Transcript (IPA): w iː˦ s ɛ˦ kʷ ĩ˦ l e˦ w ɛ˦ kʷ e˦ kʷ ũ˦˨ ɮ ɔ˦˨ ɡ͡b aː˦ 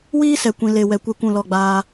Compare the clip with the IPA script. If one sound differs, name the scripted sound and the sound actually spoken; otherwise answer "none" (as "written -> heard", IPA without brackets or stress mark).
ɮ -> l